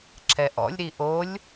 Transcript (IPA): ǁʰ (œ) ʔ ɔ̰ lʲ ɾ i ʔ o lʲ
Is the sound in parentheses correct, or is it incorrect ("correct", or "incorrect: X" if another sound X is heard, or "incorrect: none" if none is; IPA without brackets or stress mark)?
incorrect: ɛ